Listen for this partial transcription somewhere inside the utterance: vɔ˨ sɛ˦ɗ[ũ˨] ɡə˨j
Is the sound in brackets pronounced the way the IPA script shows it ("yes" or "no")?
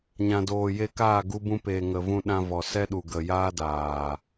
no